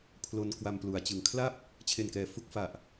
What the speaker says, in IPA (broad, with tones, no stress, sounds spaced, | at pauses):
pʰ l o˧ n k w a˧ m p l u˩˦ a̯ t͡ɕ ɯ˨˩ ŋ kʰ l a˥˩ p̚ | t͡ɕʰ e˨˩ n k ɛː˩˦ f u˦˥ k̚ f a˨˩ ʔ